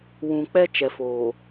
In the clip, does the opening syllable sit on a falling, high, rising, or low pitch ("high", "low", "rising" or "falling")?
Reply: low